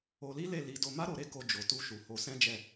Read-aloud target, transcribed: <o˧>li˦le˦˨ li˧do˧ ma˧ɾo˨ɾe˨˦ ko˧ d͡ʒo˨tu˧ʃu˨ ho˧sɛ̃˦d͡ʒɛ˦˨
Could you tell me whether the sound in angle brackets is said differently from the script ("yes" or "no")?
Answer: no